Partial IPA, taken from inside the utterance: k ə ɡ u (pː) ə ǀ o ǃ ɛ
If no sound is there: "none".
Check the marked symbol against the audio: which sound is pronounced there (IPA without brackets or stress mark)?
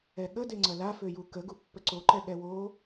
pː